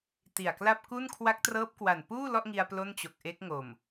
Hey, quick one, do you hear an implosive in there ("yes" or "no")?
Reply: no